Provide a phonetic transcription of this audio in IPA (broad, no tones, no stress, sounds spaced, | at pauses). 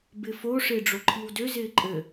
b ɪ f o ʂ ɪː ɖ͡ʐ o ǃʰ i w d ø z ɪː ǃʼ ɘ